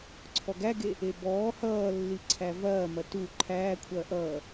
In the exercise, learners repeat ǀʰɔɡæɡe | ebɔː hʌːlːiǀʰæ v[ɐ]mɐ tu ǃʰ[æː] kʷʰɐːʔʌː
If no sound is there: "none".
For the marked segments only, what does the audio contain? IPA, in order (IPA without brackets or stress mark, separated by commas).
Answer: ɐː, æː